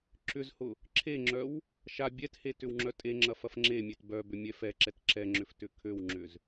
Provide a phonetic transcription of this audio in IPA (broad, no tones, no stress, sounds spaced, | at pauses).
ǁ ʏ z h ʊ | ǁʰ e ŋ͡ǁ œ w | ʃ a bʲ ɛ t h e t ʏ w ŋ͡ǁ œ tʼ e ŋ͡ǁ ɐ f ɐ f ŋ͡ǁ e mʲ e t b œ b ʏ mʲ ɛ f ɛ ǁ ɛ t ǁ ɛ ŋ͡ǁ ʏ f t ʏ kʰ ø w ŋ͡ǁ ʏ z